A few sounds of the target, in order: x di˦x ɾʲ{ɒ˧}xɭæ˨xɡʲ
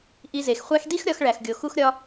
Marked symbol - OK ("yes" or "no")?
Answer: yes